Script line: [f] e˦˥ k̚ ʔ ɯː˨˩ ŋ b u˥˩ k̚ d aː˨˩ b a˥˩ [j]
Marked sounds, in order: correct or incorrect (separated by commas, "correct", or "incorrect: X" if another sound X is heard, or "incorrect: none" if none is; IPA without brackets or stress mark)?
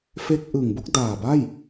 correct, correct